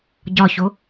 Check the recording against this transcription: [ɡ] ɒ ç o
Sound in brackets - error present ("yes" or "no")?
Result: yes